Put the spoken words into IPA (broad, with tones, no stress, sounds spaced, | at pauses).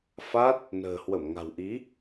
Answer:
f a˦˥ t̚ | n ə̤ː˨˩ h w ə˧˩ m ŋ a̤˨˩ w ʔ i˨˦